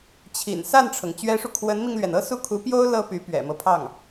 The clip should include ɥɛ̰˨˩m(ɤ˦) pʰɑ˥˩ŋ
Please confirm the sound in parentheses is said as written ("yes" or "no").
yes